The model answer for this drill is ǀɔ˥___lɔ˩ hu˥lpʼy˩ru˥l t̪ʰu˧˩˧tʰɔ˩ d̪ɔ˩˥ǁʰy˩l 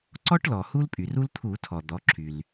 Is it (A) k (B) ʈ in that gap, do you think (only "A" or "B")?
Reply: B